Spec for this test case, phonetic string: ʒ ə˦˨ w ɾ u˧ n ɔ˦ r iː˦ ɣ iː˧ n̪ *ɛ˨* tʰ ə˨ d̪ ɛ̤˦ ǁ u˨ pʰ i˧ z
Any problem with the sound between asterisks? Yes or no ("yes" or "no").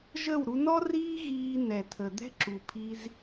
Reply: no